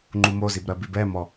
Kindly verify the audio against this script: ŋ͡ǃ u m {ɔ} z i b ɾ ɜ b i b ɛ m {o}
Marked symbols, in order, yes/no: no, no

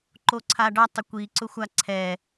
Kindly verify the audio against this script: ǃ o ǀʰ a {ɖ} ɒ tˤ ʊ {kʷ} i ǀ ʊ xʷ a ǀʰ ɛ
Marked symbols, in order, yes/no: yes, yes

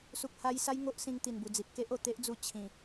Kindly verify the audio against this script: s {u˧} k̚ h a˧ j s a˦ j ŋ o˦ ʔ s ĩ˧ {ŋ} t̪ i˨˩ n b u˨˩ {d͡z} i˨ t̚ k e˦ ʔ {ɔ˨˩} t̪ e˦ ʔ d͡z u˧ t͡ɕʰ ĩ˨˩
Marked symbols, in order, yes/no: no, yes, yes, no

